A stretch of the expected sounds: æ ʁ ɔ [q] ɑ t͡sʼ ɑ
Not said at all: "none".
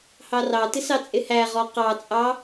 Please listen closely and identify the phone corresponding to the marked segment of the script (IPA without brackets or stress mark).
q